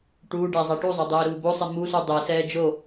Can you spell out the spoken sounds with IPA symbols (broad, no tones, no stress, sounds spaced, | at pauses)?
ʈ uː ɖ æ zˤ æ ʈ u zˤ æ dˤ eː ɾ uː b o sˤ e m u s u dˤ e s ɛː d͡ʒ o